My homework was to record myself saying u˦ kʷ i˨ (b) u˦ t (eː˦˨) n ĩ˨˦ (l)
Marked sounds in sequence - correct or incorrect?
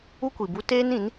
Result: correct, incorrect: eː˦, incorrect: n

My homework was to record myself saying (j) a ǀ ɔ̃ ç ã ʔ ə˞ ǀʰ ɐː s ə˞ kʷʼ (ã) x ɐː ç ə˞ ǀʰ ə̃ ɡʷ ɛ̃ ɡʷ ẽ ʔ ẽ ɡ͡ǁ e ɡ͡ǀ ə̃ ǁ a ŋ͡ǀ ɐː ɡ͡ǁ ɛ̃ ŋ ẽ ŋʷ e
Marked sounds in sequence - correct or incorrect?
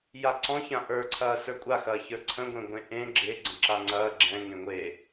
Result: correct, incorrect: a

